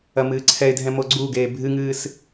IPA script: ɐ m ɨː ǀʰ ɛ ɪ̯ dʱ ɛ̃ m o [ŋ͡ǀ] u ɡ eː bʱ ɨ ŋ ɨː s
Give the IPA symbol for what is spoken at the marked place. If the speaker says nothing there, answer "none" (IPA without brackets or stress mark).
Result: ɡ͡ǀ